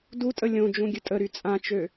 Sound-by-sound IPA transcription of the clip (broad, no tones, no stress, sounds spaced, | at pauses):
d u tʼ ə lʲ õ d͡ʒ ũ ɡʲ ə tʼ ə ɾ y t͡sʼ ã t͡ʃ ø